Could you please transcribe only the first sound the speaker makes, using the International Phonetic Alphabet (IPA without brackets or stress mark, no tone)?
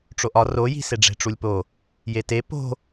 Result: ʈ͡ʂ